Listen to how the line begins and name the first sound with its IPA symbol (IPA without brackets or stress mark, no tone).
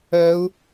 œ